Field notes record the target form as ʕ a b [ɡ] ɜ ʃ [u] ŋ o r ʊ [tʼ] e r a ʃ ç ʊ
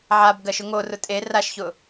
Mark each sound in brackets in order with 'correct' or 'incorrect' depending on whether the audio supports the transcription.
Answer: correct, incorrect: ʊ, correct

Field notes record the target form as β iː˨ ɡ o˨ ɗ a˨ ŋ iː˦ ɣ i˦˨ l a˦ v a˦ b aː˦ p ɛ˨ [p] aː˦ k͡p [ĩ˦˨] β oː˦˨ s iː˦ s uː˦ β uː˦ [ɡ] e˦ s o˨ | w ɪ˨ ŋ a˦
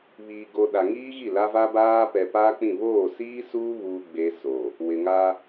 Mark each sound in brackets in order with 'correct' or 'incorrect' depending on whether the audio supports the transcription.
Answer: correct, correct, incorrect: ɡ͡b

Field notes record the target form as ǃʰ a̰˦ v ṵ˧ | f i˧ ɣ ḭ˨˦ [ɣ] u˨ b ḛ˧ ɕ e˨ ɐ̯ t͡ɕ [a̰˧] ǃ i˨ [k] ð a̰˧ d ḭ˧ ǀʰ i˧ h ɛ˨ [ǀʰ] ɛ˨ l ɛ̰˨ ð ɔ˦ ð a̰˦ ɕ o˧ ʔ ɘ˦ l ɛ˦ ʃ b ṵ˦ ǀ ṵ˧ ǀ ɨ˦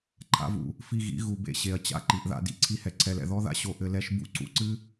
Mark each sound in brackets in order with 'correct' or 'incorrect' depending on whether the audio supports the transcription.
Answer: correct, correct, incorrect: ʔ, correct

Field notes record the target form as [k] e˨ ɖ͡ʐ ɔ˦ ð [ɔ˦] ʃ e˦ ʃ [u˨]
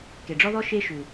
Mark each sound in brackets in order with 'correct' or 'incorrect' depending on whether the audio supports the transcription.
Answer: correct, correct, correct

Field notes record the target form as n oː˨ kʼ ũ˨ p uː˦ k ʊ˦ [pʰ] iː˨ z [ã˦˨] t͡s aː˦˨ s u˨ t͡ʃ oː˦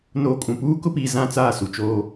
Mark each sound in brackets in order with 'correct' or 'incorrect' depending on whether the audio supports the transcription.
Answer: incorrect: p, correct

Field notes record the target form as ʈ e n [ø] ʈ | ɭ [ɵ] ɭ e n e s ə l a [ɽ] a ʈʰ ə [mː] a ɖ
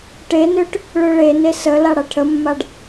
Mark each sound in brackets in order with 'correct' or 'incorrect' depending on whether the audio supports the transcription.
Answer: correct, incorrect: ø, correct, correct

